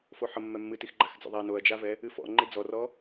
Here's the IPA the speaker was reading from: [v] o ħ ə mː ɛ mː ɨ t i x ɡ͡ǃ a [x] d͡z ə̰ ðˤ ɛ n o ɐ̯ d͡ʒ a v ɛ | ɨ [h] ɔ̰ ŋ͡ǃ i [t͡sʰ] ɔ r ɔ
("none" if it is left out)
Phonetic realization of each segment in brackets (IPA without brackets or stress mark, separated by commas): f, x, f, d͡z